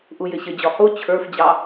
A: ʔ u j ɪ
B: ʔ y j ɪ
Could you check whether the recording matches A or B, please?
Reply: A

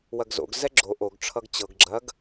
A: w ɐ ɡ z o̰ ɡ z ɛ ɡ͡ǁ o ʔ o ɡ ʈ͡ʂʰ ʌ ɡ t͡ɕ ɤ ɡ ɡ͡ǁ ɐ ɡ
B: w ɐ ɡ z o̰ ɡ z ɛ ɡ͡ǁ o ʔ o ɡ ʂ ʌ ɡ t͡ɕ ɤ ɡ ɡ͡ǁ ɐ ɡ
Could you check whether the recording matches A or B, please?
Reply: A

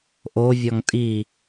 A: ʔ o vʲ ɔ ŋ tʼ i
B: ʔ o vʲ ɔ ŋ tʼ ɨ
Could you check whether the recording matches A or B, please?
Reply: A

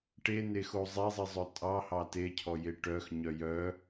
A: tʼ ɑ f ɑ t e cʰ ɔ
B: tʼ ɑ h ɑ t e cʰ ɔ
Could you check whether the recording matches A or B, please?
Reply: B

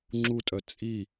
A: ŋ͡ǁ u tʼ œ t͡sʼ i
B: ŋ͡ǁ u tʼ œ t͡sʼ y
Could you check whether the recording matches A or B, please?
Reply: A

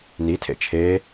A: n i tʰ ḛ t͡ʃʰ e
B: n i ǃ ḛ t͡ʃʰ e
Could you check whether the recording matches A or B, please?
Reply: A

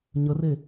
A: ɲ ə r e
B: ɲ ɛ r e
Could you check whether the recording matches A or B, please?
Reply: A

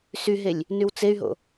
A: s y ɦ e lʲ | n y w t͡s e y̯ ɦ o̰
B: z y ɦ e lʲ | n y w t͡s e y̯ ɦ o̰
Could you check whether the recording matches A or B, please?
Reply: A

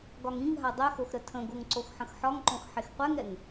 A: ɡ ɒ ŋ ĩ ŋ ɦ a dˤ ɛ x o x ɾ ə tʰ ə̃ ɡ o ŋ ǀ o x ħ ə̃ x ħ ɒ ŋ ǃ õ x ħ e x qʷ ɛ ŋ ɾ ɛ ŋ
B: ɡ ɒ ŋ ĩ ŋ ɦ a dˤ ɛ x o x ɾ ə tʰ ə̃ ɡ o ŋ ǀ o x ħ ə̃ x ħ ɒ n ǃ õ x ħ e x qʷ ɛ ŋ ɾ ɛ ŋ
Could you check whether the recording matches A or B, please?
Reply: A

